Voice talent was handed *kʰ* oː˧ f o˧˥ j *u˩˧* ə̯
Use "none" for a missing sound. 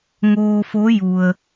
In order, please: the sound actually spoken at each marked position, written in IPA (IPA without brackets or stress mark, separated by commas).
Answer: ŋ, u˩